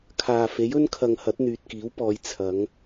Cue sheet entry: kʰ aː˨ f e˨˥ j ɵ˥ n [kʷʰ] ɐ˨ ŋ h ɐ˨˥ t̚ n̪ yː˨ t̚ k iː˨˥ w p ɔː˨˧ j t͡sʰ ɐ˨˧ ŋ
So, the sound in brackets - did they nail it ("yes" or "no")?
no